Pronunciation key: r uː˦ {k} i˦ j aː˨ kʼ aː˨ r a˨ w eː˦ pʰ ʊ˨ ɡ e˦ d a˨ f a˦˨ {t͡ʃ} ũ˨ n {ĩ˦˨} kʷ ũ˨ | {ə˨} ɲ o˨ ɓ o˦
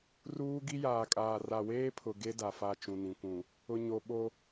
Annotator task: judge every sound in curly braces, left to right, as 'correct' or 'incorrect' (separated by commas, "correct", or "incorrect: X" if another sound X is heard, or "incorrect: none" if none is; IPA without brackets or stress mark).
incorrect: ɡ, correct, incorrect: ĩ˨, incorrect: ʊ˨